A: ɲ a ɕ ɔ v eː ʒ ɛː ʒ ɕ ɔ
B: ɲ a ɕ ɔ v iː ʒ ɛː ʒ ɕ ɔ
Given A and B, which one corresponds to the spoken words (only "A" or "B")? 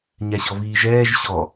B